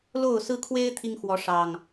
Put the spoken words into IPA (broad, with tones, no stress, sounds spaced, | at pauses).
l o˥˨ ʊ̯ s ɹ̩˦ kʰ w e˦ ɪ̯ t̪ʰ i˦ ŋ x w ɔ˨˦ ʂ ɑ˨˩ ŋ